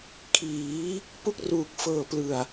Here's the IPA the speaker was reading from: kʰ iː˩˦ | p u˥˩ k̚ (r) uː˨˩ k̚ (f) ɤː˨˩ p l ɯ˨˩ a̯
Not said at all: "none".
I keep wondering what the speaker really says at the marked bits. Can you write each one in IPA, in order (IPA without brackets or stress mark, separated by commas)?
r, f